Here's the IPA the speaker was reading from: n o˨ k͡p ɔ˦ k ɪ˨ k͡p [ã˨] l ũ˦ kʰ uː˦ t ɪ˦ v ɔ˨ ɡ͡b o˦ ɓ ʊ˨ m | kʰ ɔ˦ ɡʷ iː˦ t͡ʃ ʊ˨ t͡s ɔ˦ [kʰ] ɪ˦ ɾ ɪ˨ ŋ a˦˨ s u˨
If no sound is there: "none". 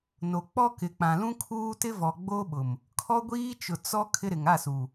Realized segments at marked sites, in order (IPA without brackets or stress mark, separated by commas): ã˨, kʰ